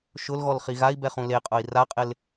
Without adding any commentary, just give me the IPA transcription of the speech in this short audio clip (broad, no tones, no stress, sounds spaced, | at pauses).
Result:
ʃ ʊ l ɣ ɔ l χ i ɣ a i̯ b ɛ χ ũ l e qʼ ʊ i̯ r a qʼ ɪ l